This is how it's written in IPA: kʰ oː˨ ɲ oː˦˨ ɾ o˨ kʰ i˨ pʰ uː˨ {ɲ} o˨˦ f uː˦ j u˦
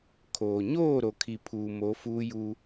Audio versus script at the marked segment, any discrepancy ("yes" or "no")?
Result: yes